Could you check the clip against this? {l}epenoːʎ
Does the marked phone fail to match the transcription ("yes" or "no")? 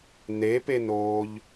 yes